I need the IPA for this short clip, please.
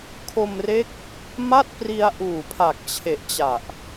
kʰo˧mre˦˥k̚ | ma˥˩t̚pri˧a̯ ʔuː˨˩pʰa˨˩k̚t͡ɕʰe˨˩ʔt͡ɕa˨˩ʔ

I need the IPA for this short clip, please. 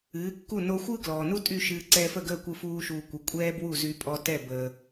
ɨː˩˥kːu˥˩ no˧xʷɯ˥ɡlɔː˩nu˥ tʼy˥˩ ʃɨː˧ ǀɛː˧fə˥˩ɡəː˥˩ kʷɯ˥fuː˥ʃuː˧kʷɨ˩˥ kʷʼɛː˥ bwu˥˩zy˧pʼɔ˧ tɛ˥˩bəː˩

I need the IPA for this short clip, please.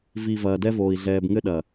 vi˨ vɐː˨dɛ˦voː˨i̯ ɮɛː˨bŋɘ˦ɗɐ˨

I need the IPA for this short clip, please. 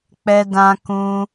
k͡pɛ˧dã˧ kũ˧

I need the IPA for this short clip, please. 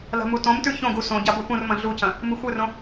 la̤mutõmtʉ çõɡu sõ ɟabopũrmɐ̃ ɮucɐ̃ | mɨxʷɨrõ

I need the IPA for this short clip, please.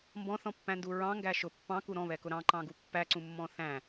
mbɔ̃θɔ̃pːæ̃ndu ɹɑ̃ŋɡæ ʃʊ pːɑ̃ku ɾɔ̃βɛkʊ ɾɑ̃ǃɑ̃ɡu pːæǀũmːɔ̃ θæ̃

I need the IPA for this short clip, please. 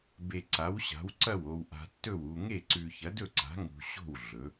be˧ǀa˨˥wɕa̤˨˥w ǀɐ˥˨wo˧w ʔa̤˧tːɵ˥˨wu˧ ŋe˥˨ǀʉ˧ çɐ˨˥dɵ˥˨ǀa̤˨˥ ŋṳ˧ɕo̤˥˨w ɮɵ˨˥

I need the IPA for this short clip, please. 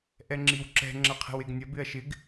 ʔɛŋ͡ǁiwǁɛ̤ ŋ͡ǁɐqʰe̤weɡnʲɐ bɪɐ̯ʃɪɡ

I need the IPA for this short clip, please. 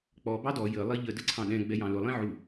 k͡pɔ bɑdɔ jə lˠiʎə dəǀʰɑ̃ɗɛ̃ ɡ͡bɛjɑ̃lʊ lˠĩʕu

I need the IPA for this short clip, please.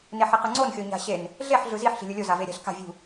neħeqɯŋ͡ǀon xʲoɲa̤ɕen | ɮeħ ɮɯziħ ɬi̤lʲɯlʲo zaveɾʲa̤ɬ ka̤ vʲṳ

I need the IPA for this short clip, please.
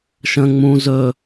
ʃə̃ ŋ͡mũ zɵ

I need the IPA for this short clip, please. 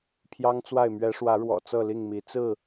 pʰjɑ˦ŋt͡swa˥˨ɪ̯ mɥɛ˨˦ʂwä˨˦ɻwɔ̰˨˩ t͡sɤ˥˨li˥˨ŋmi˨˦ t͡sɹ̩˥˨

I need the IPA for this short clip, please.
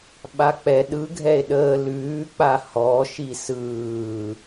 ɓak͡pɛ ɗɯ ɡʱɛe̯ɗəː lʉːk͡pa hɔʃi sɯː

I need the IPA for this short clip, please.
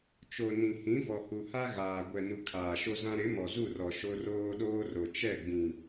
t͡ʃo˨ nĩ˨hĩ˨˦ vɔ˨hu˨ ha˦ ɣaː˨ ɡʷɛ˨nu˨ kʰaː˨ʃo˦zã˦ ɾɪ˨˦ mɔ˨zu˦˨rɔ˨ ʃo˦roː˦ɗoː˦ro˨ t͡ʃɛ˦˨ɡ͡bĩ˨

